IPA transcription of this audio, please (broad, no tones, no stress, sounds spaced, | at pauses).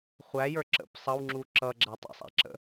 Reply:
χʷ æ j ə˞ ǁ ə̰ p sˤ ʌ w ŋ͡ǁ u ǁ ʌ ɡ͡ǁ æ tˤ ə̰ sˤ æ̰ ǁ ə̰